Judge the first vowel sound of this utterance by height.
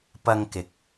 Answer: low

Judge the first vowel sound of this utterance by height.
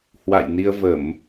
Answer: low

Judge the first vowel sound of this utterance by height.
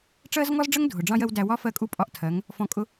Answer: mid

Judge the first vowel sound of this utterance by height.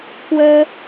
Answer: mid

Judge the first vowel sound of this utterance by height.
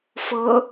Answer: mid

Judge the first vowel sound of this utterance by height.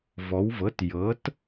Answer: mid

